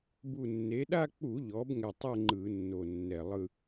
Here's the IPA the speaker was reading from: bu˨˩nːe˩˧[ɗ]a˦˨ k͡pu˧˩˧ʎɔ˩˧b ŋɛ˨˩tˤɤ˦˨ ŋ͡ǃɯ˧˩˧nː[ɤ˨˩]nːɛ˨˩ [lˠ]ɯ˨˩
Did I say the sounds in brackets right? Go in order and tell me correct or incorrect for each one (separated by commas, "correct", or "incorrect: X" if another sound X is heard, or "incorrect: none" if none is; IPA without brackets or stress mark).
correct, incorrect: o˨˩, correct